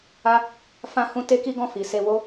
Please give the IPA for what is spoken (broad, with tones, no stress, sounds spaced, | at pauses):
a˦ | f ã˧ h ũ˧ t e˦ k i˦ ɡ ɔ̃˦˨ f i˨ s e˧ w o˦